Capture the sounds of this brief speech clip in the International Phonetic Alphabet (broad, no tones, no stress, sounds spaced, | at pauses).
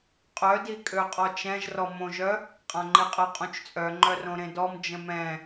qʼ œ d i kʼ ø qʼ ɔ t͡ʃ ɛ̃ ʒ r ɔ m õ ʒ œ | qʼ ã ŋ͡ǃ i qʼ ə qʼ ũ t͡ʃ t͡sʼ œ ŋ͡ǃ œ r õ ɾ ẽ d ɔ m d͡ʒ ə̃ m ɛ̃